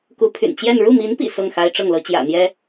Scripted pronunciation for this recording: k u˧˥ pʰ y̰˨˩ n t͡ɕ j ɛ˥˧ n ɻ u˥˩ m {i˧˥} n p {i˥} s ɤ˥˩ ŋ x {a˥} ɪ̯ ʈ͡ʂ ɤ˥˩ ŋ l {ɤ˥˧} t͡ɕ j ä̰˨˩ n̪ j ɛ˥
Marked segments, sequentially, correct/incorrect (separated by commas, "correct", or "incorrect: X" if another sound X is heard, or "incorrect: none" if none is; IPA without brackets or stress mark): correct, incorrect: ḭ˨˩, correct, incorrect: ɤ˥